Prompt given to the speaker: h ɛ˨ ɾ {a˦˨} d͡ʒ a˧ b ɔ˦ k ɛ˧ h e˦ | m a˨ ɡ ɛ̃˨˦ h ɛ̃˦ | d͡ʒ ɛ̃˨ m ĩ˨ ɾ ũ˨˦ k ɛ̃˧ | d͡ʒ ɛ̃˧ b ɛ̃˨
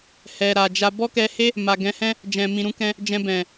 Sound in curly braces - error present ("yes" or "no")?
yes